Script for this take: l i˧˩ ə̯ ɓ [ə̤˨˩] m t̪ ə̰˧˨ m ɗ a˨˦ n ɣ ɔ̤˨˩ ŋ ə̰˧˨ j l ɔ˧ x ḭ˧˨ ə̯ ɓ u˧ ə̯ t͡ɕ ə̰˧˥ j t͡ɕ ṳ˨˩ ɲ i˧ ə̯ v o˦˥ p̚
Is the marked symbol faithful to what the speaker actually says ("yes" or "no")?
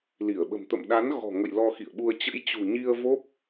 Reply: yes